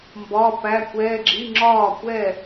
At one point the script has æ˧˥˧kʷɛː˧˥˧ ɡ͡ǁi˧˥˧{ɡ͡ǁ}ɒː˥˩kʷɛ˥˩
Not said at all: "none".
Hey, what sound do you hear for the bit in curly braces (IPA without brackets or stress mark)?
ŋ͡ǁ